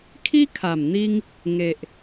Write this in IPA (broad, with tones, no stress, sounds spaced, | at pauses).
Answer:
kʰ i˦ kʰ a˨˩ m n̪ i˧ ŋ | ŋ e˨ ʔ